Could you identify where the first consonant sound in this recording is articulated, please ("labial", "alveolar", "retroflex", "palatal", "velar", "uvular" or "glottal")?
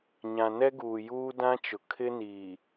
palatal